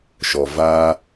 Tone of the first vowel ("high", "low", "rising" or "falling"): low